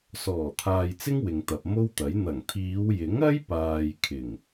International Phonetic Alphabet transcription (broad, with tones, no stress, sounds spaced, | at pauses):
s ɔː˨˩ t̪ʰ aː˨ j t͡s ɪ˥ ŋ w ɪ˨ ŋ t̪ ɐ˨ p̚ m o˥ w t̪ ɐ˨˥ j n̪ ɐ˨˩ ŋ t̪ʰ iː˨˧ w j ɪ˨˥ ŋ ɐ˥ j p aː˨ j kʰ ɪ˨˩ ŋ